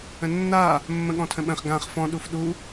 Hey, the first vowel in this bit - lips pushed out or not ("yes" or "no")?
no